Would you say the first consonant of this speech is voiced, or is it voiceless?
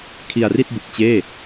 voiceless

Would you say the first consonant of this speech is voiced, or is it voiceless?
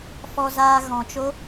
voiceless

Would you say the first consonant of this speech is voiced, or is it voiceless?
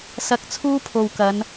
voiceless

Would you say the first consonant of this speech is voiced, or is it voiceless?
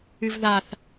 voiced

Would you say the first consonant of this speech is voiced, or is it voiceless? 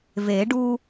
voiced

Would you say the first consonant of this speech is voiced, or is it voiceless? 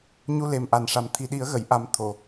voiced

